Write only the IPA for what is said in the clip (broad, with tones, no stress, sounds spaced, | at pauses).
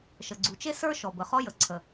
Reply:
ʃ ə˩ ɡ͡ǀ u˩ t͡ʃ e˥ s ə˞˥ ʃ ɔ˩ b ə˩ χ ɔ˥ j ə˩ ǀʰ ə˩